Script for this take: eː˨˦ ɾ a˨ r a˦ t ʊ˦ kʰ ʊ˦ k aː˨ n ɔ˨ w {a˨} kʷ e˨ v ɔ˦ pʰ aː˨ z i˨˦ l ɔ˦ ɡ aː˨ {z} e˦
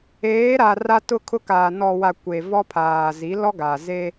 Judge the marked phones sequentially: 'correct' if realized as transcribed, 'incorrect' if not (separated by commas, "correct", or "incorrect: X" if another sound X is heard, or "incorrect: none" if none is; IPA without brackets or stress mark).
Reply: correct, correct